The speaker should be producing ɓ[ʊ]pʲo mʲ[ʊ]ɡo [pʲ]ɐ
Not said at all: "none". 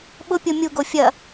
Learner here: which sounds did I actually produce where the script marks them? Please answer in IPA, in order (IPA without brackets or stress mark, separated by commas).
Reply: ʊ, u, fʲ